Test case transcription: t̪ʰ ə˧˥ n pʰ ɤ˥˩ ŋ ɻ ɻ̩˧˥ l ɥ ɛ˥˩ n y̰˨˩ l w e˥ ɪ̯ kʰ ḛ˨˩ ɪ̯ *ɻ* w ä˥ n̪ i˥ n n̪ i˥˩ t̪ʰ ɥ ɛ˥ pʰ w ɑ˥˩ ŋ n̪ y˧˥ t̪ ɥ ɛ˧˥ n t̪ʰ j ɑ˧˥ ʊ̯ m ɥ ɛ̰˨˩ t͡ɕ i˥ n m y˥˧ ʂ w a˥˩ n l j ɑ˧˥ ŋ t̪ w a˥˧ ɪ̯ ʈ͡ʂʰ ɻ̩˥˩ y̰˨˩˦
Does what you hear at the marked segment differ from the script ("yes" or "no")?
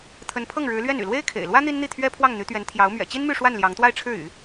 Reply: yes